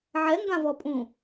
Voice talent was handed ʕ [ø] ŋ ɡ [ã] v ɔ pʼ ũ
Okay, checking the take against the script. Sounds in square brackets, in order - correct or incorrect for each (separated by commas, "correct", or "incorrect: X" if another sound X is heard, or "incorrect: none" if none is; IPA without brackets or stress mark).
incorrect: ɛ, correct